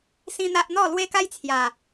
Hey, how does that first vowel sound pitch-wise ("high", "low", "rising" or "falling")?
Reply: high